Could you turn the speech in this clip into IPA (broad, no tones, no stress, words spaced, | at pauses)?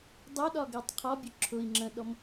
dˤʊɗɒɡɜtˤ qʰɒbʲʊ ǁʰʊi̯ ŋ͡ǁə̃ɗɔm